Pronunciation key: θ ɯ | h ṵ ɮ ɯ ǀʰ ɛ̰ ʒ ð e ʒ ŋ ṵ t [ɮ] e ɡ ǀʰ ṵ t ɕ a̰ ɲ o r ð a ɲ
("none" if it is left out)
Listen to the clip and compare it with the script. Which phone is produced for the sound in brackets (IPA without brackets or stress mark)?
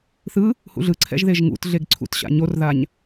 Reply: ɮ